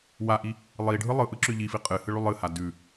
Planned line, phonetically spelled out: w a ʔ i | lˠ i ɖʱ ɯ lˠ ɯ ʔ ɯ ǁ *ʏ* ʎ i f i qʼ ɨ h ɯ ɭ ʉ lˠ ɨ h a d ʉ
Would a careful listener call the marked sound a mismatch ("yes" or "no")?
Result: no